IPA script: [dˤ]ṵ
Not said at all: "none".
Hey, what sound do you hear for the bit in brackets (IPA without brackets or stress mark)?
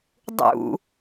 dˤ